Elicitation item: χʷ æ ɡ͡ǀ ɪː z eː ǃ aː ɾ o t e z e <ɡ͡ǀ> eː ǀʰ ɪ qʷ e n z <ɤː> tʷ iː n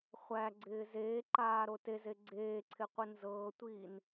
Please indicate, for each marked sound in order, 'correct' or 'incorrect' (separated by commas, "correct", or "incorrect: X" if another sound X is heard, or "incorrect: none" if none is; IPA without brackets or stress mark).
correct, correct